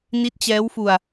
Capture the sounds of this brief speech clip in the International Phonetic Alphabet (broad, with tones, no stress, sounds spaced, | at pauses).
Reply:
n i˦˥ t̚ t͡ɕ ɛː˦˥ w f u˧ a̯